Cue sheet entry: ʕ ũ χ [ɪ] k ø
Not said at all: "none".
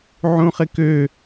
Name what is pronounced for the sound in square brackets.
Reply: ɪ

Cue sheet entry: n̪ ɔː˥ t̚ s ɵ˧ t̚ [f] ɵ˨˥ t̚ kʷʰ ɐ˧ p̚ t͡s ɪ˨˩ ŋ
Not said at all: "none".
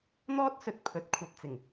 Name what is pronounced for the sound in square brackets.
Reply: pʰ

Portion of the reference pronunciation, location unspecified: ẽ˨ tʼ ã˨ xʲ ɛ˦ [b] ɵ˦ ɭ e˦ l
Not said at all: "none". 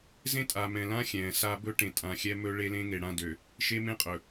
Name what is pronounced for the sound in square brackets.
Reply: m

